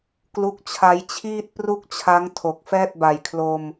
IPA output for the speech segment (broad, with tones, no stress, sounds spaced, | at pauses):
k l u˦˥ k̚ t͡ɕʰ a˦˥ j t͡ɕʰ iː˥˩ t̚ p r u˥˩ k̚ t͡ɕʰ a˦˥ ŋ tʰ o˨˩ k̚ f ɛː˥˩ t̚ b a˨˩ j kʰ l o˧ m